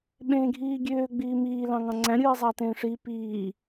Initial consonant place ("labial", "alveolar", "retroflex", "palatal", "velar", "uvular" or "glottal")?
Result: labial